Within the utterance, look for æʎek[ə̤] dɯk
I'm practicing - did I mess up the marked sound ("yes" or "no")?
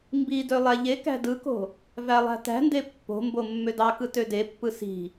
yes